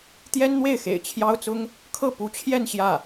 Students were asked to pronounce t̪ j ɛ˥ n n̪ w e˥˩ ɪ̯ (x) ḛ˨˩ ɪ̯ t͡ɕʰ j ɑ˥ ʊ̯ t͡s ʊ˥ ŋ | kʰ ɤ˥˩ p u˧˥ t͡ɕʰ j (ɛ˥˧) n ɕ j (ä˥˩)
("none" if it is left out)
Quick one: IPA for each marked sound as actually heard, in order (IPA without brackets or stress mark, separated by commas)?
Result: x, ɛ˥˧, ä˥˩